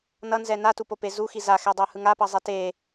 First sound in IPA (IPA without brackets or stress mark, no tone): n